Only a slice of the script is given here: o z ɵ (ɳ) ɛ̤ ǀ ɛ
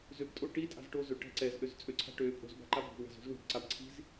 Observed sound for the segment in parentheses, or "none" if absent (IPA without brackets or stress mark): ʈ